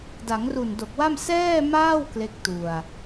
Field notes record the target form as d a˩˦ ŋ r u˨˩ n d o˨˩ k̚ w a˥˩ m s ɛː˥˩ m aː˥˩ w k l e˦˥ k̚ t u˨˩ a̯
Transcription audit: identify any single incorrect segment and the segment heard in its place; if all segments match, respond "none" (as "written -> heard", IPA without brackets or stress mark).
none